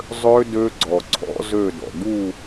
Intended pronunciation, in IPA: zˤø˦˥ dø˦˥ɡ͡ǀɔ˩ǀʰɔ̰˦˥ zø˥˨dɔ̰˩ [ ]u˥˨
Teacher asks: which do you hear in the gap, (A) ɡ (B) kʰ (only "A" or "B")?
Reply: A